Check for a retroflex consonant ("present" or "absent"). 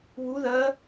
absent